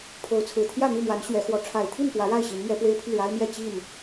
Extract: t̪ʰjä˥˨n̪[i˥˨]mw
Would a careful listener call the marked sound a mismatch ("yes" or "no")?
no